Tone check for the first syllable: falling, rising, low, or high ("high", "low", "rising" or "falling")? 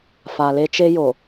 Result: low